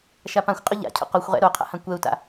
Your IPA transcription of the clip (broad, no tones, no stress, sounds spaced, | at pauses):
ʃ a p ã xʷ qʼ ʊ ʎ a̰ cʰ o̰ q o xʷ ʁ ɛ̰ ɾ o qʰ a̰ h ã kʷ ɛ u̯ t a̰